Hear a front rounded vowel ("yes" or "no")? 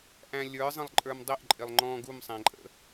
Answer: no